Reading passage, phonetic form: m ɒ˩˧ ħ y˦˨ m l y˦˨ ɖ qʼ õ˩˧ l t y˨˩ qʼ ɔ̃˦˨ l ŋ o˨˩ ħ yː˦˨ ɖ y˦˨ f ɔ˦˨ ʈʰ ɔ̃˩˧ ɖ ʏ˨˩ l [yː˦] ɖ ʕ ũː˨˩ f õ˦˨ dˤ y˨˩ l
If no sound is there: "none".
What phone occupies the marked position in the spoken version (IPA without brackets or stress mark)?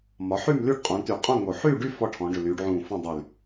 yː˩˧